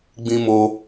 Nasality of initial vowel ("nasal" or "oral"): nasal